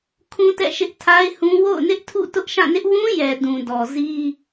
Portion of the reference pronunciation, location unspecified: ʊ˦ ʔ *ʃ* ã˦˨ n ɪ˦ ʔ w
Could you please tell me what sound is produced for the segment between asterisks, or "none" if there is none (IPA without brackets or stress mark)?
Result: ʃ